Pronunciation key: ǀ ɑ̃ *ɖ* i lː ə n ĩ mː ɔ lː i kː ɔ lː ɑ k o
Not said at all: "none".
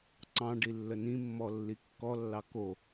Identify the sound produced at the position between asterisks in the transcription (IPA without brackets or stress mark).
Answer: ɖ